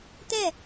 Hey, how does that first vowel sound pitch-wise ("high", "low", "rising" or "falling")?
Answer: falling